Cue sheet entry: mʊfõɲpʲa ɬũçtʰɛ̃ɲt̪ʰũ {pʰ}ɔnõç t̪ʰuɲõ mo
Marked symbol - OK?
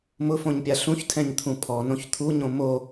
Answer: yes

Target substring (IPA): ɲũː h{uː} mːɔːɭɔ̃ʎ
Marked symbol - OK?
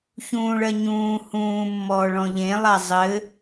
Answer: no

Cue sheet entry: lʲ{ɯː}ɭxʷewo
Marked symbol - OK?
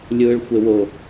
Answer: yes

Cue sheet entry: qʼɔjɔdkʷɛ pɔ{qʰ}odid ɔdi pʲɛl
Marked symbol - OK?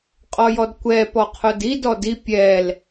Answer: yes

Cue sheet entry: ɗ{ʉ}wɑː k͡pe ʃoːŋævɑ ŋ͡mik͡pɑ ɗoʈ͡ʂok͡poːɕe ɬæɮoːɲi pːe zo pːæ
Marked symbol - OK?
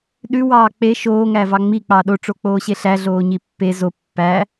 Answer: yes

